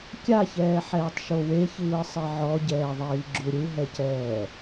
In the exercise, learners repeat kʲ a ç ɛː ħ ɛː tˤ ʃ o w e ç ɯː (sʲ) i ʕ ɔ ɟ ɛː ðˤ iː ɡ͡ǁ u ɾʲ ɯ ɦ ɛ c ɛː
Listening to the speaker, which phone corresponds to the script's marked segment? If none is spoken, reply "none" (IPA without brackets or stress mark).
sˤ